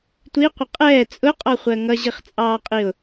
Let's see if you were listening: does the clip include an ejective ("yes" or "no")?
yes